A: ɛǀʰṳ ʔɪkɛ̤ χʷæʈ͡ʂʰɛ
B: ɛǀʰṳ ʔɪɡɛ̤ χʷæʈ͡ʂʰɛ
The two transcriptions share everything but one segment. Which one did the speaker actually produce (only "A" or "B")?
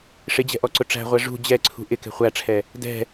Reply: A